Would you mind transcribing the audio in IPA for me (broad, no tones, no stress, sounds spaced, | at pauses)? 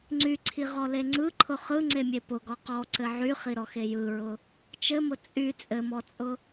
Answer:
ŋ͡ǀ y ǀʰ i ʁ ɔ l e ŋ͡ǀ ɯ ǃʰ ʊ χ ɯ ŋ͡ǀ e mʲ e p ʊ ɡ ɔ q ɔ ǀ ɘ ʕ y χ i ɾ ɔ x e j ɯ ɹ ʊ | t͡ʃ ɘ m ʊ t͡sʼ y t͡sʼ ɘ m ɔ t͡sʼ ʊ